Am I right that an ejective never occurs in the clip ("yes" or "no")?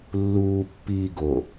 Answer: yes